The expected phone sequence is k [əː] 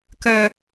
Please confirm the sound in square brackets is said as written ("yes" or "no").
no